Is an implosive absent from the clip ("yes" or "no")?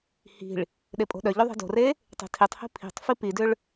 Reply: no